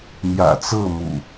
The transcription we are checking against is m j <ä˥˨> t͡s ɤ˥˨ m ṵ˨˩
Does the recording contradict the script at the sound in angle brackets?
yes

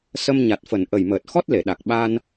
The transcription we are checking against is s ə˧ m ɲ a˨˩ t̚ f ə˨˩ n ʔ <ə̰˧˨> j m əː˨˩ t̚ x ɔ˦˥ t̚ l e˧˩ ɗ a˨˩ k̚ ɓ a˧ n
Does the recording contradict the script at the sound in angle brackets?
yes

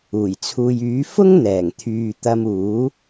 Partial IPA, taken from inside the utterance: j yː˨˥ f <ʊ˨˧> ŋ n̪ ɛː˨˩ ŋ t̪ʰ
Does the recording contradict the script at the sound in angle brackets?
yes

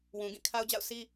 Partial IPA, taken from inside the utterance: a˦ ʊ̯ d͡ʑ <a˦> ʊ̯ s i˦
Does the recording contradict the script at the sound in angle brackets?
yes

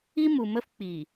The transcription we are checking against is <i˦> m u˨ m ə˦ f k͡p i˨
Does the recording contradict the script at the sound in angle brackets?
no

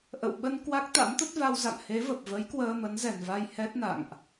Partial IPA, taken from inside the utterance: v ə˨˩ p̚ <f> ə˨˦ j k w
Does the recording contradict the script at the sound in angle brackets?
yes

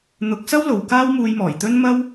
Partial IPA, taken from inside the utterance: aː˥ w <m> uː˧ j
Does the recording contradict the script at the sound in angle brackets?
no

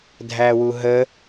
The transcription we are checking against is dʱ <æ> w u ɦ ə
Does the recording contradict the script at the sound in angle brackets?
no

